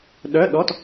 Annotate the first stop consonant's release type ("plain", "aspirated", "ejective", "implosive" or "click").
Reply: implosive